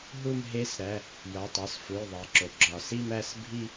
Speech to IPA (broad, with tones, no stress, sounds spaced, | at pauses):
ɦ u˥˧ m ɦ e˦˥ s ɾ æ˩˧˩ | j ɒ˩˧˩ tˤ ɒ˩˧˩ s f u˩˧˩ j ðˤ e˩ ǁ o˩ ɡ͡ǁ ɒ˩ s i˥˧ m æ˥˧ s bʱ i˥˧